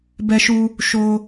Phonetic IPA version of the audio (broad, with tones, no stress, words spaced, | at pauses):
bɛ˧ʃu˧ | ʃo˧